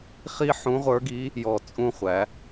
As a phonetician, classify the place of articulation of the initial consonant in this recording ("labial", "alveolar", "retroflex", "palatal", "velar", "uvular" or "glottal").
uvular